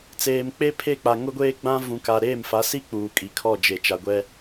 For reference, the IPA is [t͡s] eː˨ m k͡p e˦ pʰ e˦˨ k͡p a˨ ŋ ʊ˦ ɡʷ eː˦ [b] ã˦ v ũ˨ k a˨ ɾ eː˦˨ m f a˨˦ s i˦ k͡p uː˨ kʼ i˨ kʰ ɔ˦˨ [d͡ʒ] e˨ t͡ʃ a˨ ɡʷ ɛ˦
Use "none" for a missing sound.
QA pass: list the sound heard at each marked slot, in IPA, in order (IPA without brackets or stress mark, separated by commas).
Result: t͡s, ɡ͡b, d͡ʒ